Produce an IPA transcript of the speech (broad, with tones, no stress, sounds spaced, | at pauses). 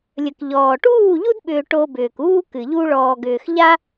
lʲ ə˨ k ʎ ɔː˨ ʈ uː˦˨ ʎ u˦ d ɓ ʏː˧ ʈ o˧ b ʏː˨ k uː˦ k ɨ˨ ʎ u˧ ɭ ɔː˨ ɡ ʏː˨ x ʎ a˦